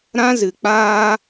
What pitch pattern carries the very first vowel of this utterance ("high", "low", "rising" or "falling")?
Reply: high